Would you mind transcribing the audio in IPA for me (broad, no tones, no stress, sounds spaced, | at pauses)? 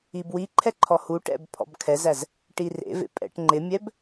i b w i ǃʰ ɛ ǃʰ ɔ h u ʈ ɛ̰ b pʰ ɔ̰ b kʰ ɛ z æ z | ʈ i r ḛ v ḛ pʼ ɛ̰ ʈ ŋ͡ǃ ɪ mʲ ɛ b